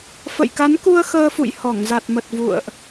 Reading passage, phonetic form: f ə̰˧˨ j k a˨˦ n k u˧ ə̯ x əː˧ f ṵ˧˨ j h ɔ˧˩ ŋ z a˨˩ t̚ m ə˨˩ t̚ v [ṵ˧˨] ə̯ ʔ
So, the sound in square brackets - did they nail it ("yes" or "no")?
yes